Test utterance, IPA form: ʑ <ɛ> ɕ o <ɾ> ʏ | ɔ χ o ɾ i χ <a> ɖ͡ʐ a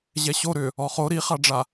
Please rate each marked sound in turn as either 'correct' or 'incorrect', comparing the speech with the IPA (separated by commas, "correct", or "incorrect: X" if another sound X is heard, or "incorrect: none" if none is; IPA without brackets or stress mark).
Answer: correct, correct, correct